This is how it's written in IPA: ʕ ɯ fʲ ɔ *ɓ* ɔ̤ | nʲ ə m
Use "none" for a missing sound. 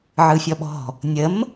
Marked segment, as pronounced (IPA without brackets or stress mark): ɓ